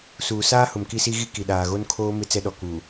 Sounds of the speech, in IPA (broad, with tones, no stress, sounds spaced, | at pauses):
s uː˨ s aː˦ h ʊ˨ m k i˦ s i˦ ɣ i˦ k i˨ ɗ aː˨ ɣ o˦ n kʰ oː˦ m ɪ˦ t͡s ɛ˦ ɗ ɔ˨ k uː˨